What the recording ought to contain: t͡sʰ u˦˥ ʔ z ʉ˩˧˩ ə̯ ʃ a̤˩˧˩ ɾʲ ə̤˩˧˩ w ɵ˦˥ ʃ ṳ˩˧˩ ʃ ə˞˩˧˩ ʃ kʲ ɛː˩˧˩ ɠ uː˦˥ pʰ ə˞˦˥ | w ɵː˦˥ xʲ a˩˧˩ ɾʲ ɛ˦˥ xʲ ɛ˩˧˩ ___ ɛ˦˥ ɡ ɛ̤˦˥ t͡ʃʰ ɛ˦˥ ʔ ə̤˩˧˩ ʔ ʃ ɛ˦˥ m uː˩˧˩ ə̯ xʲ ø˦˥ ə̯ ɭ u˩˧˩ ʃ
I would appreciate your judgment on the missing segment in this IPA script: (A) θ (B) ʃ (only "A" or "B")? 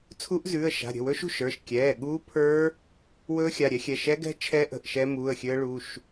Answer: B